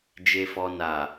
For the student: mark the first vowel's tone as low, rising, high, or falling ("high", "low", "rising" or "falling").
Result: low